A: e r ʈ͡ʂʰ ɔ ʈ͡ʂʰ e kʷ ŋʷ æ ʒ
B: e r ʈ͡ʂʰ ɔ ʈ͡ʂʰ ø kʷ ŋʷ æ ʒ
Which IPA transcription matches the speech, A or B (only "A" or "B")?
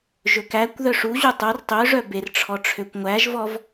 B